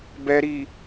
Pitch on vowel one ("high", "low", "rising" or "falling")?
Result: low